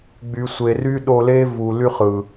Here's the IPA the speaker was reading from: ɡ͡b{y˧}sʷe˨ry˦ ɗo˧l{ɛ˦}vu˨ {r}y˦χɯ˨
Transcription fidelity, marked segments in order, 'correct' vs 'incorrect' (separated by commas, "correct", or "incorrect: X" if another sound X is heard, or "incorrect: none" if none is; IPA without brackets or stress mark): incorrect: y˨, incorrect: e˦, incorrect: l